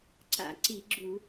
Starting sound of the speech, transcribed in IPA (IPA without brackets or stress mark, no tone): ǀ